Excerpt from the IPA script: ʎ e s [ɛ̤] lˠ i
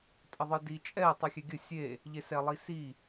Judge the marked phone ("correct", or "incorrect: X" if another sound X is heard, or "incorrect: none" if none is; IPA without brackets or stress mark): incorrect: ɛ